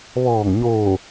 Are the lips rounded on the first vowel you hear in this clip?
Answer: yes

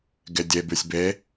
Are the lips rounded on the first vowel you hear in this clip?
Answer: no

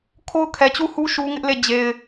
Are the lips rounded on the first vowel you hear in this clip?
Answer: yes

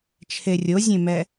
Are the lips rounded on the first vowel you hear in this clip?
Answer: no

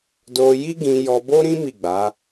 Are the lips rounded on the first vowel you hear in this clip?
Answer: yes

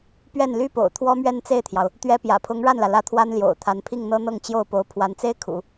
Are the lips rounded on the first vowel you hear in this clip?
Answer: no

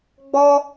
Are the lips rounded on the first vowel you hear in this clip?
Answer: yes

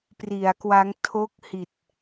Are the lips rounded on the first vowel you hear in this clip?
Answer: no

